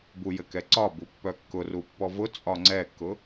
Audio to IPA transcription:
b u j ɘ k ɛ ǀ ɒ b u pː œ kː ʊ r u pː ɔ v ʊ t͡sʼ ɒ ŋ͡ǀ ɛ kː ʊ

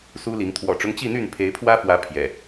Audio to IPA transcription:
s u˦ l i˨˦ ŋ t̪ʰ w ɔ̰˨˩ ʈ͡ʂ ʊ˦ ŋ t͡ɕ i˥˨ n̪ y˥˨ n pʰ e˨˦ ɪ̯ pʰ w ä˦ f w ä˨˦ pʰ j ɛ̰˨˩

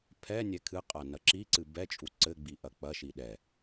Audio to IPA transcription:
pʰ ɛ nʲ ɛ kʰ ɨ qʼ a n ɐ ǁ i ǀ ɨ b ɛ t͡ʃʼ u ǀ ɘ ɡ͡b i ʔ ɐ k͡p ɐ ʃ i ɗ ɛ

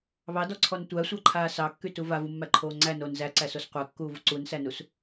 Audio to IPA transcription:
β ɑ d ɔ ǀʰ ɔ n tʷ æ sʷ a ǃʰ aː s ɑ kː y t u v a v u mː æ ǃʰ oː ŋ͡ǀ æ n oː n z æ ǀ æ s o s qʷ æ kː uː v u ǀ u n s æ n u s

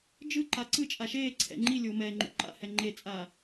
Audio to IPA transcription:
d͡ʒ ɯ ǃ a ǀ ɯ t͡ʃʼ a ʃ eː ǀʰ ɛ̰ ŋ͡ǃ i lʲ oː m ɛː ŋ͡ǃ ṵ ǃ a̰ h ɛ ŋ͡ǃ e t͡sʼ aː

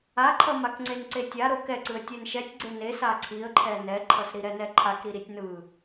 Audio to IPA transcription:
a ǃʰ ʌ m a k ŋ͡ǀ e n ǀ e tʲ a ɾ o k ɛ ǀ ɯ ə̯ tʲ ɛ n ʃ ɛ tʲ ɡ͡ǀ e n e s a ǀʰ i ə̯ ǃʰ ɛ n ɛ ǃʰ ʌ s ɾ i ɾ ɛ n ɛ ǃʰ a k ɾ i ɾ i tʲ n ɯ

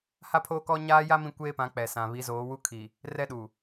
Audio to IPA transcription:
h a˦ pʰ oː˦ k ɔ˦ ɲ aː˦ j a˦ m ĩ˦ kʷ eː˦ p ã˨˦ k͡p ɛ˨ s ã˨ β i˨˦ z oː˨˦ w u˦ kʰ i˨ | r ɛ˦ ɗ u˨

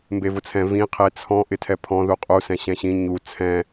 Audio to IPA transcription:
m b e v ʊ t͡sʰ ɛ̃ v ĩ qʰ e t͡sʰ ɔ̃ ʔ ɪ tʰ ɛ pʰ ɔ̃ ð u qʼ u s ɛ̃ ɕ ɛ̃ ɕ ĩ ɲ u t͡sʰ ɛ̃

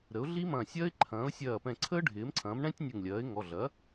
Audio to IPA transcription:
ɾ ə˩˥ ʊ̯ ɮ i˦˥ m ɐ̃ː˧˩ sʲ ɐː˦˥ ɪ̯ ǃʰ ɐ̃ː˩˥ ʊ̯ sʲ ɐː˧˩ p ɛ̃˧˩ ǀʰ əː˦˥ ɖʱ ɪː˩˥ m ǀʰ ɐ̃ː˩˥ m ɳ ɛ̃˦˥ tʲ nʲ ə˧˩ ŋ lʲ ɐː˩˥ ɪ̯ ŋ ɔ˩˧˩ ɮ ɐ˩˥

